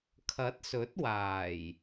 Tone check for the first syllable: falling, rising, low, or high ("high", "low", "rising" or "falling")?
rising